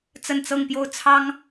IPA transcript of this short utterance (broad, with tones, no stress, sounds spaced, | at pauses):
t͡s ə˥˧ n t͡s ɤ˥˧ ŋ p j o˥˩ ʊ̯ t͡sʰ ɑ˥ ŋ